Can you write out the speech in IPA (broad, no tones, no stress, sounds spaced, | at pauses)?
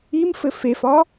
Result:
i m f ɘ f e f ɒ